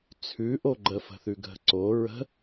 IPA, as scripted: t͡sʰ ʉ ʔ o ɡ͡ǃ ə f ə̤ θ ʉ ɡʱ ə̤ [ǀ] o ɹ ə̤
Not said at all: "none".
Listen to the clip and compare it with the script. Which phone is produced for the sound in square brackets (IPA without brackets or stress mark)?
ǀ